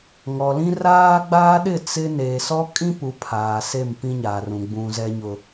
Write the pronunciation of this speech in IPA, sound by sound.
ŋ ɔ˨ l ĩ˦ r aː˦ ɡ͡b aː˦ ɗ ɪ˦˨ t͡s ɪ˦ n eː˨ s ɔ˦ kʼ ĩ˦ p u˨ pʰ aː˨ s e˦˨ m p ĩ˦ ɲ aː˨ r ũ˨ ɡ͡b ũ˨ z ɛ˨ ɲ ʊ˨

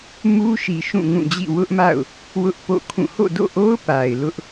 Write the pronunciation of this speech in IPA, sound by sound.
m u˦ ʃ i˨ ʃ ũ˦˨ ŋ ũ˦˨ d͡ʑ ḭ˦˨ w ʊ˦ ʔ m a̰˦˨ ʊ̯ | w ʊ˦ ʔ p o̰˦˨ kʰ ũ˦˨ h o̰˦˨ d o̰˦˨ ʔ o˦ ʊ̯ p a˨ ɪ̯ l ʊ˦ ʔ

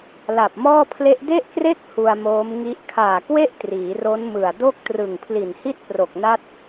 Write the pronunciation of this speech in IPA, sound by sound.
l a˨˩ p̚ m ɔː˥˩ pʰ l e˦˥ ʔ d e˥˩ ʔ k r e˥˩ k̚ h u˧ a̯ m oː˦˥ m ŋ i˦˥ ʔ kʰ aː˨˩ k w e˥˩ ʔ t r iː˩˦ r o˦˥ n m ɯ˨˩ a̯ d o˥˩ k̚ t r ɯ˨˩ ŋ pʰ l i˨˩ n h i˥˩ t̚ p r o˨˩ k̚ n a˦˥ t̚

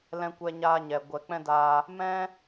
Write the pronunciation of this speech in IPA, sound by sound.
l ɛ̃˦ kʷ ɛ˦ ɲ aː˦ ɲ ɛ˨ ɡʷ ɛ˨ k͡p ɛ̃˦ d aː˧ | m ɛ̃˦

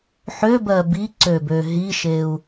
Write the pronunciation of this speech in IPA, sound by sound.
ħ ø b ɜ b i ǀ ø b ø ɦ i ʃ e u̯

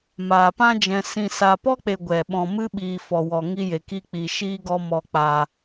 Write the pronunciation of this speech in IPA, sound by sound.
m aː˨ p ã˦ d͡ʒ ɛ̃˧ s ĩ˨ s a˨ p ɔ˦ k͡p e˨ ɡʷ ɛ˨ ɓ ɔ̃˧ m ɨ˦ ɓ iː˧ f ɔ˨ w ɔ˨ ŋ i˧ j e˨ k i˧ k͡p i˨ ʃ iː˦ ɡ ɔ˦ m ɔ˧ k͡p a˧

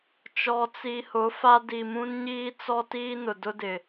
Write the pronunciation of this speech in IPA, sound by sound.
t͡ʃ ɔ˨ t͡s i˨ h ʊ˨˦ f a˦ d i˨ m ũ˦ n ɲ iː˦ t͡s ɔ˦ t iː˦ n ʊ˨ d ʊ˦ d ɪ˨

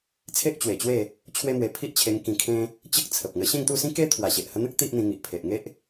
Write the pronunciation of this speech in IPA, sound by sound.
t͡sʰ e˦ ʔ t͡ɕ w e˨˩ t͡ɕ w e˥˧ | t͡ɕʰ w e˦ m w e˧ pʰ i˦ ʔ t͡ɕʰ e˧ ŋ k ĩ˧ kʰ ẽ˦ | t͡ɕ ə˦ k̚ t͡sʰ ə˨ p̚ ŋ ə˧ ɕ ẽ˥˧ ŋ t̪ u˥˧ s ĩ˦ k e˦ t̪ʰ w a˨˩ ɕ e˨ ʔ h ə˧ n̪ ə˦ k̚ t̪ i˦ ʔ n̪ ĩ˧ ŋ i˨ ʔ pʰ e˨ ʔ ŋ e˦ ʔ

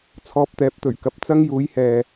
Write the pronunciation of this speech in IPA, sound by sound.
t͡sʰ ɔː˧ p̚ t̪ ɛː˨˥ p̚ t̪ ɵ˨˩ ɥ k ɐ˨ p̚ t͡s ɐ˥ ŋ j uː˨˥ j h ɛː˨

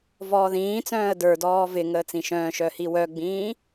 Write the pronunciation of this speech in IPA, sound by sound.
v ɔː ð ĩː t͡s œ̃ː ə̯ d ə˞ d ɔː v ɪ ŋ əː t͡s ĩ ʃ œ̃ː ʃ œ h i w œ ɡ͡b ĩː

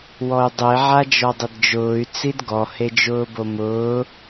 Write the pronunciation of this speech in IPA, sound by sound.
w ɔ y̯ dˤ e ʕ a d͡ʒ ɔ dˤ ɪ d d͡ʒ ʊː y̯ t͡s i d ɡ ɔ h e d͡ʒ ʊː b o m ʊː

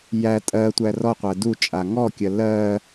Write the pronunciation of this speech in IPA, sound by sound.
j æ tʼ ɜ tʷ æ r ɔ qʷ æ d u t͡ʃʼ a ŋ ɔ kʲ ɜ l ɜ

